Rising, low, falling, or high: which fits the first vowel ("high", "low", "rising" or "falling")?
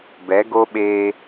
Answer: rising